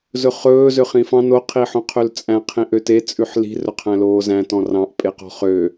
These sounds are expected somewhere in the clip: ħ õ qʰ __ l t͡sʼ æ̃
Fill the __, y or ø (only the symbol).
ø